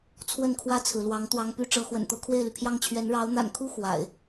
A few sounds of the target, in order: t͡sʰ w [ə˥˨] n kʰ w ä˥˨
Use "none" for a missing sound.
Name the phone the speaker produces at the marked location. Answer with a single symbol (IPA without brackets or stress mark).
ə˥˨